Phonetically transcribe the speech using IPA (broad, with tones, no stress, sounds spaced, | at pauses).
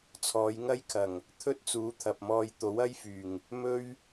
t͡sʰ ɔː˨˧ j ŋ ɐ˥ j kʰ ɐ˨˩ ŋ | t̪ʰ ɵ˥ t̚ t͡s uː˨˥ t̪ʰ ɐ˨ p̚ m ɔː˧ j t̪ o˨˥ w ɐ˥ j f yː˨˩ ŋ | m ɵ˥ ɥ